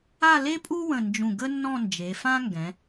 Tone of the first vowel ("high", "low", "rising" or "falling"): falling